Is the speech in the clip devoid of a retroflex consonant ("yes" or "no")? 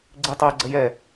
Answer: yes